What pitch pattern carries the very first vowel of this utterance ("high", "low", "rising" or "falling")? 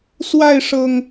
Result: falling